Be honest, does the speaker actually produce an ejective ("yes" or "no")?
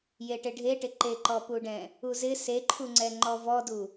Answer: no